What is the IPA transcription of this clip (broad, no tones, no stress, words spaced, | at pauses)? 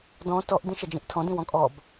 dɔ̃ tɔʔ dĩʃɛd͡ʒĩʔtʰɔ̃ dĩwɔ̃kʼɔb